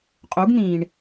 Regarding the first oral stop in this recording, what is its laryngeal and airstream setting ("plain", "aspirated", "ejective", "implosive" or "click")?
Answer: ejective